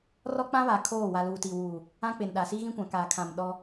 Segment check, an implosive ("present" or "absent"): present